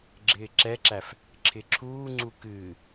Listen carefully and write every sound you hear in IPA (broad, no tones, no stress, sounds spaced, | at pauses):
ɡ͡ǁ ɪː ǁ ɛ ǁ æ f | ǁʰ ɪ ǁʰ uː ŋ͡ǀ u k ɨː